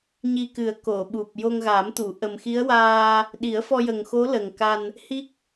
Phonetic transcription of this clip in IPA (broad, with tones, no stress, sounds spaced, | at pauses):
ɲ i˧ k ɨ˨˩˦ ə̯ k o˨˩˨ ɓ u˨˩ p̚ j o˧ ŋ ɣ a˨˩˦ m t̪ u˨˩˨ ʔ ə˨˩ m x i˧˥ ə̯ w aː˧ | ɗ i˨˩˦ ə̯ f ɔ˧ j ə˨˩ ŋ x o˧˥ l ə˨˩ ŋ k a˧ n | h i˦˥ k̚